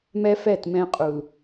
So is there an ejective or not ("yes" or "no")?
yes